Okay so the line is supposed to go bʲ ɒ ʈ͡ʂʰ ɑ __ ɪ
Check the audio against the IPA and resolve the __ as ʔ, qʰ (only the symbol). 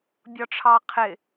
qʰ